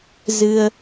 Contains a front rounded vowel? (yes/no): no